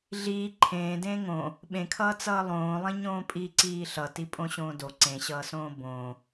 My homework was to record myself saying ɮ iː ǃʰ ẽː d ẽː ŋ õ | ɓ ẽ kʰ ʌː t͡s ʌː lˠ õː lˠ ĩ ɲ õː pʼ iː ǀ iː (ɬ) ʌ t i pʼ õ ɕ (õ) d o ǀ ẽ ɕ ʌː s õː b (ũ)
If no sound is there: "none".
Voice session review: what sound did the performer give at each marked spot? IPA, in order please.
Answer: ɬ, õː, õ

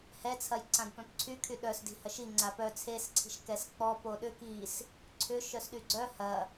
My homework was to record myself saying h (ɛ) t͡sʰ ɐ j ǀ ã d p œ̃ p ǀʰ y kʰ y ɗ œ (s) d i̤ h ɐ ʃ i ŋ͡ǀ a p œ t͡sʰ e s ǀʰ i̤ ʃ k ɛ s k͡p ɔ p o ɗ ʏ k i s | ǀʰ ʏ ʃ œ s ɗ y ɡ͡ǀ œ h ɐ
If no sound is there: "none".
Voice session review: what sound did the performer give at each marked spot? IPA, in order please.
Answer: ɛ, s

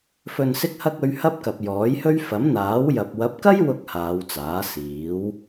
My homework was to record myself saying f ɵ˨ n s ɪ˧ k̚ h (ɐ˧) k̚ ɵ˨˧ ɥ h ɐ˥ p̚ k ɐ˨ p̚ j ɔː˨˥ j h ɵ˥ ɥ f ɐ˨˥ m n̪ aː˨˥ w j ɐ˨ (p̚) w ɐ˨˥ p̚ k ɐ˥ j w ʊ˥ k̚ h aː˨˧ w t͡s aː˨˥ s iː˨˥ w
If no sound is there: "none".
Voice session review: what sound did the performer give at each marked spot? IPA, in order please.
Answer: ɐ˧, p̚

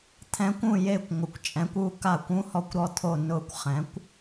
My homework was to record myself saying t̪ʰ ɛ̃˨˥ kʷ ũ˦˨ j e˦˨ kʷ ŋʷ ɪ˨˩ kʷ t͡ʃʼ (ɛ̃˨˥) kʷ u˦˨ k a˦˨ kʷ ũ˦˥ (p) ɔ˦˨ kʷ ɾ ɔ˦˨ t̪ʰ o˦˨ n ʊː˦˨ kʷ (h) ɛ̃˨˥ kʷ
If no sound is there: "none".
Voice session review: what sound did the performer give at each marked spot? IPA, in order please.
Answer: ɛ̃˨˥, h, χ

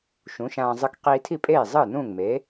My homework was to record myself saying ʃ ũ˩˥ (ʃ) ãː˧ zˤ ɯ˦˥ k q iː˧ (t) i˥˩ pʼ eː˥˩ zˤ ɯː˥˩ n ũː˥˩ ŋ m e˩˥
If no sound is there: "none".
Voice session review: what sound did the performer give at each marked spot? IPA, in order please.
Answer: ʃ, tʰ

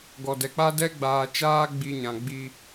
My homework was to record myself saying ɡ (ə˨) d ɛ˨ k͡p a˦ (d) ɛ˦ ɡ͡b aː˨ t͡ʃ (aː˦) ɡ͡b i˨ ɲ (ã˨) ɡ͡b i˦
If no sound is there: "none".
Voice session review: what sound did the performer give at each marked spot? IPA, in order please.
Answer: ɔ˨, d, aː˦, ã˨

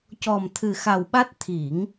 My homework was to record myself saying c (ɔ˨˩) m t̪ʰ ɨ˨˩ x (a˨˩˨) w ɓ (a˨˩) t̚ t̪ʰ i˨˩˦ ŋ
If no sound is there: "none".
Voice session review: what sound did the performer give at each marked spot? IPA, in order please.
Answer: ɔ˨˩, a˨˩, a˦˥

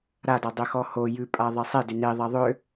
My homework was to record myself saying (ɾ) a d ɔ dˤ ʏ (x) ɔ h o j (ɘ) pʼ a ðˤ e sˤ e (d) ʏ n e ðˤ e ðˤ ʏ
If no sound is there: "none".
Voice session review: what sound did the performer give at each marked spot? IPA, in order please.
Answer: ɾ, x, ʉ, d

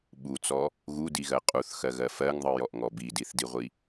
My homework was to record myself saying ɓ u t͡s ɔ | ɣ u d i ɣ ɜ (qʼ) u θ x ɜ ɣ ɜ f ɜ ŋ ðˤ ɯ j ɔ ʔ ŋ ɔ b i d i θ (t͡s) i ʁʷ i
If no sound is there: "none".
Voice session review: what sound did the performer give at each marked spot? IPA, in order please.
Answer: qʼ, d

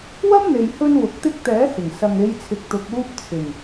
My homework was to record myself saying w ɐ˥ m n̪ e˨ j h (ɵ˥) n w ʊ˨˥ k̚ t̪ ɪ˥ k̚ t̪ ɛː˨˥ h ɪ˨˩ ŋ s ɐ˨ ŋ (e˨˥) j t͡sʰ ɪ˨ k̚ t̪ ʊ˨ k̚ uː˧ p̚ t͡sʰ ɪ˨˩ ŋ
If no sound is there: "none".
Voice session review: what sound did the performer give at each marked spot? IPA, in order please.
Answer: ɵ˧, e˨˧

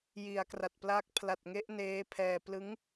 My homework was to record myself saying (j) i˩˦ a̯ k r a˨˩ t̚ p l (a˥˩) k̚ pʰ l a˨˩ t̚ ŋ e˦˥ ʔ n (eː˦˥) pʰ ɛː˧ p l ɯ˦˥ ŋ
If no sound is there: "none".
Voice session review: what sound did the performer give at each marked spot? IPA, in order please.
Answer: j, a˦˥, eː˦˥

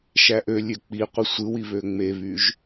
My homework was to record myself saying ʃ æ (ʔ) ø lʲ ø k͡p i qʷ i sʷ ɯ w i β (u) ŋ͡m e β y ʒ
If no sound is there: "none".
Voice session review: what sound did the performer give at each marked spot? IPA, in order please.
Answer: ʔ, ø

